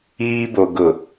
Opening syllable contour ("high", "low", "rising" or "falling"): high